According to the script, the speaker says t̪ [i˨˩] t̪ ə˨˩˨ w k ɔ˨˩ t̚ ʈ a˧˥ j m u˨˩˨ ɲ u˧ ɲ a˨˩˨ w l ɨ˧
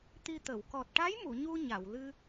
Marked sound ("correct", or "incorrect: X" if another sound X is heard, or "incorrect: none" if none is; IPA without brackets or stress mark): incorrect: i˧